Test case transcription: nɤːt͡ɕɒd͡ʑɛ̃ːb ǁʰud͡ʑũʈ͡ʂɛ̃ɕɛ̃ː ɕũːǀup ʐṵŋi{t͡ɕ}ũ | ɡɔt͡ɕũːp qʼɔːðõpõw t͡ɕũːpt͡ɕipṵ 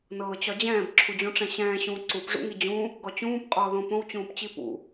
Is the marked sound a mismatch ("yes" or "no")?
yes